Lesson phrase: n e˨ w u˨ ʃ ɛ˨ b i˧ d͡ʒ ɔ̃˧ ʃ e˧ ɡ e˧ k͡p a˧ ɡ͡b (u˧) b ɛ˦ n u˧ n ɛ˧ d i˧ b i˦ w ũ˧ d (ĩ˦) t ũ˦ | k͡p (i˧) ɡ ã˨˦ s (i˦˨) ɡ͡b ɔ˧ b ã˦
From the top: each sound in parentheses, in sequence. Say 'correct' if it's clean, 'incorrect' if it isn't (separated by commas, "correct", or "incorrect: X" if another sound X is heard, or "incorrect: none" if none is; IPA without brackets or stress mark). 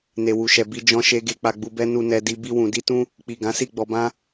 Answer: correct, incorrect: i˦, incorrect: i˨, correct